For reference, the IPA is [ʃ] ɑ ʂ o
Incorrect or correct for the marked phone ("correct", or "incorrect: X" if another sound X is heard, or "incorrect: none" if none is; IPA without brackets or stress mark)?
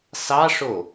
incorrect: s